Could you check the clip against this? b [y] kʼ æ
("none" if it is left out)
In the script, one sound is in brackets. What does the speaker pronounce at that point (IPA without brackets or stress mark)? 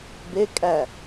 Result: e